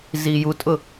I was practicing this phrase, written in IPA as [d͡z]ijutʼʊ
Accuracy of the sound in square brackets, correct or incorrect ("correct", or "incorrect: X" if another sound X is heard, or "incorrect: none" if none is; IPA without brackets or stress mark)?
incorrect: z